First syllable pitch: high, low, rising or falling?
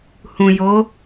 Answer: low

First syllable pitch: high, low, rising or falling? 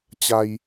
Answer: high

